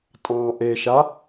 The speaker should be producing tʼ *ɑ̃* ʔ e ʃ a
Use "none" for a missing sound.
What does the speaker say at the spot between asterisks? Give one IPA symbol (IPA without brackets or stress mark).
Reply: ɑ̃